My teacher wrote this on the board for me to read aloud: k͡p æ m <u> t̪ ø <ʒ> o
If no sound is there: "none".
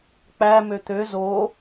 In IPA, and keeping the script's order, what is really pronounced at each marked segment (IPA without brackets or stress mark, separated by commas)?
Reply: ø, z